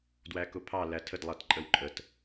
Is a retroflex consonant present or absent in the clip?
absent